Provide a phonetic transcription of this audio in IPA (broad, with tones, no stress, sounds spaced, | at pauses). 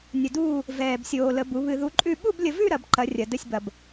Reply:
nʲ ə˧ d uː˥˧ | v ɛː˧ b sʲ oː˧ l ə˧˥ b u˧˥ β ɨ˧ ð u˧˥ ǃʼ ʉ˥˧ ɓ u˥˧ b lʲ ə˧ v ʉ˥˧ ɾ ɐ˧˥ b ǃ ɐ˧˥ rʲ ɐ˧ d ə˥˧ sʲ b ɐ˧ b